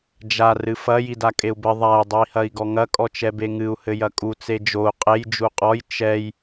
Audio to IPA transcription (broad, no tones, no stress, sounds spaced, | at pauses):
d͡ʒ a r ɨ f ɐ j i d a kʼ e u̯ b ɘ ðˤ a i̯ dˤ ɨ i̯ h ɐ i̯ ɡ ɔ ŋ ɐ kʼ ɔ t͡ʃ ɛ b e ŋ ɨ u̯ h ɘ j ɐ kʼ u t͡s e d͡ʒ o u̯ qʼ e j d͡ʒ u qʼ ɔ j t͡ʃ ɛ j